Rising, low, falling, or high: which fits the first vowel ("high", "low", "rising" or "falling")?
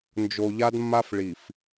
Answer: low